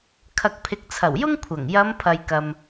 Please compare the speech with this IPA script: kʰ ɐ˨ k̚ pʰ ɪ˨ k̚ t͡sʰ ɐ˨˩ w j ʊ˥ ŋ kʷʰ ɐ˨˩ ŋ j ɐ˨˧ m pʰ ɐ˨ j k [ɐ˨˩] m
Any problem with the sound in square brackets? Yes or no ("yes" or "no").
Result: yes